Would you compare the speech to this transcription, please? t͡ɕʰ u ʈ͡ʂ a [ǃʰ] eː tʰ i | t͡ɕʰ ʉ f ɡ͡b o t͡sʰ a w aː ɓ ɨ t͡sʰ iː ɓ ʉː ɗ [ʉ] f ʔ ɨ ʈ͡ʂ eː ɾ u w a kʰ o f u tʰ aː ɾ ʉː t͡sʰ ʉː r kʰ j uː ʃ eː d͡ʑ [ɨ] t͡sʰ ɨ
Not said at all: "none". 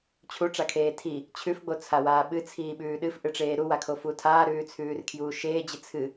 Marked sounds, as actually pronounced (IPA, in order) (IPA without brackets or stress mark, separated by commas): kʰ, ɨ, ɨ